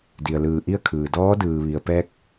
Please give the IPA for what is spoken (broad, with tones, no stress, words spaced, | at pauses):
di˩ə̯lɯː˧˩ʔi˥˨ə̯kʰɯː˩ dɔː˧˥dɯː˩ʋi˩ə̯ pɛː˧k̚